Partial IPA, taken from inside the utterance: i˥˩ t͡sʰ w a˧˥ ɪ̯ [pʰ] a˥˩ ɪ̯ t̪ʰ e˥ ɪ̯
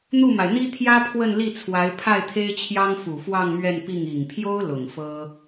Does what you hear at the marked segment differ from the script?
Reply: no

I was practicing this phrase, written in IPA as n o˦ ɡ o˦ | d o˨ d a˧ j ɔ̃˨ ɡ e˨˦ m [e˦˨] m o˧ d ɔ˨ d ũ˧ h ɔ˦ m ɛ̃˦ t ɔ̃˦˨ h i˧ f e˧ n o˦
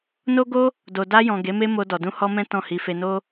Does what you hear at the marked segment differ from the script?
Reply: yes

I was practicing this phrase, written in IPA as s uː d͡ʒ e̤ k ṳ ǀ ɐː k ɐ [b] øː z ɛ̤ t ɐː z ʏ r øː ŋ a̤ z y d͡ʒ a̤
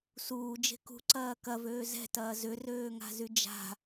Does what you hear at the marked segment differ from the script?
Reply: yes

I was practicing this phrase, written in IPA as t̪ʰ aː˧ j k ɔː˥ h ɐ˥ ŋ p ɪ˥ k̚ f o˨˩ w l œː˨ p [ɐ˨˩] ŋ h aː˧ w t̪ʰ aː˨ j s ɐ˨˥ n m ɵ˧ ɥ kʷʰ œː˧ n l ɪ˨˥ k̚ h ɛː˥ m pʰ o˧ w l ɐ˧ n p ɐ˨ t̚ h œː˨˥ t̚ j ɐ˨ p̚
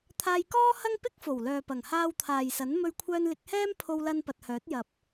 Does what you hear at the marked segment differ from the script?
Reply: no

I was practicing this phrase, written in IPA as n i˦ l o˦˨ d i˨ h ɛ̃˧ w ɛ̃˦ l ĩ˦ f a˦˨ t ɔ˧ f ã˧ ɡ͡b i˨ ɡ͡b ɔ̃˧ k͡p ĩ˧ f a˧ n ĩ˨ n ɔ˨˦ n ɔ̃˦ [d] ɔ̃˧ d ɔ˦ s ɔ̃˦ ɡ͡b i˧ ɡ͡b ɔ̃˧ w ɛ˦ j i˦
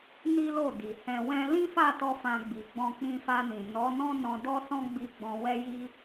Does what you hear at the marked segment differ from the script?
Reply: yes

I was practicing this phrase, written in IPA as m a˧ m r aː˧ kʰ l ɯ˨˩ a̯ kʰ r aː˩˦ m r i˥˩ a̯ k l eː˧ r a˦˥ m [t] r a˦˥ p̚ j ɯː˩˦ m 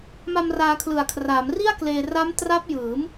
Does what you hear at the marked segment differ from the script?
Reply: no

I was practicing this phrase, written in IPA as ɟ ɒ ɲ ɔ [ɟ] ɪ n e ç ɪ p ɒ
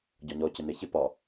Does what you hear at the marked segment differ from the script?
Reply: yes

